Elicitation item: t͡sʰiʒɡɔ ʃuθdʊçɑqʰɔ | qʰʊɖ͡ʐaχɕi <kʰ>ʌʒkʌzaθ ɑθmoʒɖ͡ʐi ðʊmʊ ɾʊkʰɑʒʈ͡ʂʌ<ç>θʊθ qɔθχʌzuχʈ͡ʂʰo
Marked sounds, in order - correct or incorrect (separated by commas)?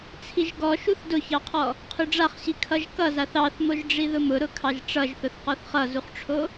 correct, incorrect